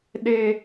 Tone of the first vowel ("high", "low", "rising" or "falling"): high